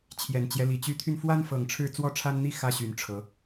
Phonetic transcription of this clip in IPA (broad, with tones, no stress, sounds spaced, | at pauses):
t͡ɕʰ j ɛ˨˩ n t͡ɕ j ɛ˦ l i˨˦ t͡ɕ y˨˦ t̪ʰ y˧ n f w a˦ n f ɤ˨˩ ŋ ʈ͡ʂʰ ɻ̩˥˨ t͡s w ɔ˦ ʈ͡ʂʰ a˦ n n̪ i˥˨ x ä˦ ɕ y˨˦ n ʈ͡ʂʰ ɤ˨˦